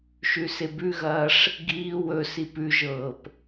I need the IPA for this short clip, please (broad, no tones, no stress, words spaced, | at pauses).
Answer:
ʃʉsebʉɣɐːʂ | ɡiː wɵ sipʉʒɤːp